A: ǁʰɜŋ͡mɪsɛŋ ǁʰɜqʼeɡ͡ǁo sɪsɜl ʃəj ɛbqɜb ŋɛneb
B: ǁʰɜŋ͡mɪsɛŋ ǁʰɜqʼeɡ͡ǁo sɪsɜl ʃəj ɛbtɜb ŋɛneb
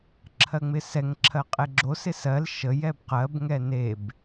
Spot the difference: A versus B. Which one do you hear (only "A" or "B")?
A